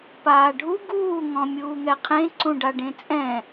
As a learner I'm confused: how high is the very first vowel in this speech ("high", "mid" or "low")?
low